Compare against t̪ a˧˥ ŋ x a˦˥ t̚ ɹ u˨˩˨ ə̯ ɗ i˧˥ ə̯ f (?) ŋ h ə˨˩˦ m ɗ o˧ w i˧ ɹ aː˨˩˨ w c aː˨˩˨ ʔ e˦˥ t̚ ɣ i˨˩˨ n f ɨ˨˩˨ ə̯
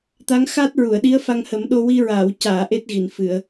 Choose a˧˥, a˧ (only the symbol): a˧